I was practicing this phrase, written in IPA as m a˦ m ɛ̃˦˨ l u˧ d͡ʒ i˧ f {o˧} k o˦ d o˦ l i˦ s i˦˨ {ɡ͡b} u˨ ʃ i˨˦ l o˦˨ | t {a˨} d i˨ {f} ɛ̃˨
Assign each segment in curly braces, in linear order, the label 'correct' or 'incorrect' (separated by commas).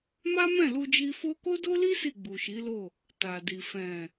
correct, correct, correct, correct